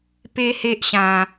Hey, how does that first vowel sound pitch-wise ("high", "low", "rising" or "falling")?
high